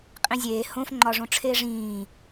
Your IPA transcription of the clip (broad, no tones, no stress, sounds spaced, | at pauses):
qʼ ĩ zʲ eː h õ f ŋ͡ǃ ɒ ʐ õ ʈ͡ʂʰ eː ʐ ĩː